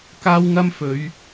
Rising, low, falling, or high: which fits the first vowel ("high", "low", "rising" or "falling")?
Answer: high